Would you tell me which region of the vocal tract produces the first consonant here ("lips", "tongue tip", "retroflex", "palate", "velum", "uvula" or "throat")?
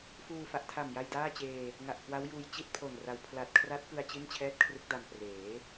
lips